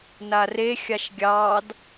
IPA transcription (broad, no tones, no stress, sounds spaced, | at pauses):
n a r e xʲ a ʃ ɡʲ ɑ d